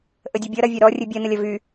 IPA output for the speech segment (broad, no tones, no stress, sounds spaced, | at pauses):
ʔ ə dʲ ʌ bʲ ʌ ɾ ɐ vʲ ɐ ɾ ɔ rʲ ɨ bʲ ɐ n ə lʲ ɐ v y